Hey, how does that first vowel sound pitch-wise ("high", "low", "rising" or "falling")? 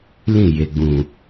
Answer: falling